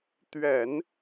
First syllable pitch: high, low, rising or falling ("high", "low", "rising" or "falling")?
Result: low